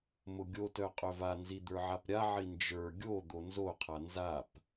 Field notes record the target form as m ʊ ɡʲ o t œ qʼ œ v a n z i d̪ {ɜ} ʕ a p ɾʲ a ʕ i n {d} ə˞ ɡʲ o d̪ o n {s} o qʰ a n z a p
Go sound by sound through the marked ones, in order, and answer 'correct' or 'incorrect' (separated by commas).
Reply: incorrect, incorrect, incorrect